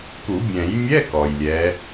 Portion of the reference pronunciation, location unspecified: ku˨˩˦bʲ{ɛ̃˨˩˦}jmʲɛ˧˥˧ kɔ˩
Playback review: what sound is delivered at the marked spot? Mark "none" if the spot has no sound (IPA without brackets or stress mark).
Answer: ɛ̃˨˩˦